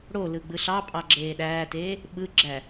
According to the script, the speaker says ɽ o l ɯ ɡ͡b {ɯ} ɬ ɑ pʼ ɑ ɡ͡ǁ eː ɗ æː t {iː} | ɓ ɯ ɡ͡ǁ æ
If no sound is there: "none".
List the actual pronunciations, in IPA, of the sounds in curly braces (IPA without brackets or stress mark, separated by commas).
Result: ɯ, eː